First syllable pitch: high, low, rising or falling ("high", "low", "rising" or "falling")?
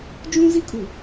high